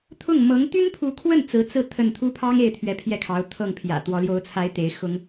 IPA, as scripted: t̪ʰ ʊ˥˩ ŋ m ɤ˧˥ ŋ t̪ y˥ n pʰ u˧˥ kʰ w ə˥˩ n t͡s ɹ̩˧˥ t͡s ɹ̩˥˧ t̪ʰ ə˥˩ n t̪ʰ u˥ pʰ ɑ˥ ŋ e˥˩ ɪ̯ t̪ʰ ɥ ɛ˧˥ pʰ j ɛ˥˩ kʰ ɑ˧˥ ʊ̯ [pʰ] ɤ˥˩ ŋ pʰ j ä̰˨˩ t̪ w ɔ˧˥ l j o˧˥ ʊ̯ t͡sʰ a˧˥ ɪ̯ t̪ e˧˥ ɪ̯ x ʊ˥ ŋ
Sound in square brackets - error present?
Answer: yes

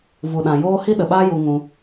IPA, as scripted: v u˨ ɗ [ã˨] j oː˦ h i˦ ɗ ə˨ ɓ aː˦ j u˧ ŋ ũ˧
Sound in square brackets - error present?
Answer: no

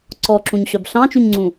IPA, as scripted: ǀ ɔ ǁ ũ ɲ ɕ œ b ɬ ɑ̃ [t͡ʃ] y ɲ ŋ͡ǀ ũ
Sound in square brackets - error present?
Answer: no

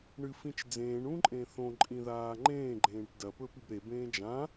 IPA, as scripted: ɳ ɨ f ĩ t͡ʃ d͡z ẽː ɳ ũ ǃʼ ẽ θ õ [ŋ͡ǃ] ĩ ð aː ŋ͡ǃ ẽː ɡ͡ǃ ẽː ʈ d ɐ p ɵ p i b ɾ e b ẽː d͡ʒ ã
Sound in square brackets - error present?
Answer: yes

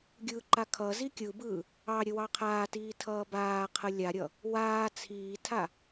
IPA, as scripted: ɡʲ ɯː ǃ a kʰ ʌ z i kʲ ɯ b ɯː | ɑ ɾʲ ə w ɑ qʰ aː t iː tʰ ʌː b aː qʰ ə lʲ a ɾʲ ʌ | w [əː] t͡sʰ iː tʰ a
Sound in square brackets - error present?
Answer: yes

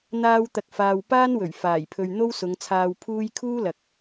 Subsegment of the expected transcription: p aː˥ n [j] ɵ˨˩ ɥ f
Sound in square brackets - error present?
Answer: yes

